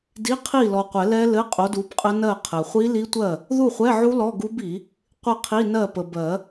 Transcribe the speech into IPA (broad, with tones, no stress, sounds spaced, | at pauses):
d i˧˥˧ qʰ i˥˨ l ɔ˨ qʷ ɛ˨˩˦ l ɛ˦˥ l ɘ˧˥˧ qʼ o˨˥ d u˨˥ b qʼ ə˦˥ n ɜ˥˨ qʰ ɘ˨ χʷ i˦˥ l i˦˥ tʷ ɜ˥˨ | ð u˥˨ χʷ ɛ˧˥˧ ʕ u˦˥ l ɔ˧˥˧ ɡ u˦˥ b i˨˩˦ | qʷ ɘ˥˨ qʰ i˧˥˧ n ɜ˥˨ p ə˨ b ɜ˨˩˦